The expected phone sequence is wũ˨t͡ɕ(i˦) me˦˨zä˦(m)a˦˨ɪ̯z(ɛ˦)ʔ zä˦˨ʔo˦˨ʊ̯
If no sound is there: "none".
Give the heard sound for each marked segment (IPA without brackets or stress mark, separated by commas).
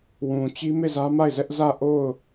i˦, m, ɛ˦